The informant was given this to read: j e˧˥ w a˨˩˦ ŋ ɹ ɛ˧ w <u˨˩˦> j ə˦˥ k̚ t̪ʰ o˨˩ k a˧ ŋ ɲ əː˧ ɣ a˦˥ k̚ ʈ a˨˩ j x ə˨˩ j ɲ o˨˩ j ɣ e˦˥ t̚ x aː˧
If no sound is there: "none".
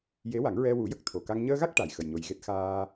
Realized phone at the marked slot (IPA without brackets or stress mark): u˨˩˦